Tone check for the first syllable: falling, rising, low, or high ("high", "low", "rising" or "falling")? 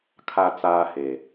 high